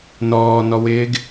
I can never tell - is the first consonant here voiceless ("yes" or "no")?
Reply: no